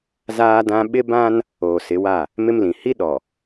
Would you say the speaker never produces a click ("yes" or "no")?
yes